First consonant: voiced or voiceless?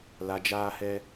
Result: voiced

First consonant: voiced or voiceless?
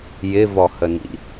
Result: voiced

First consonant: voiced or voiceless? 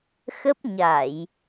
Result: voiceless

